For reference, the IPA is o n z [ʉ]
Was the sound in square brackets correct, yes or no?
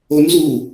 no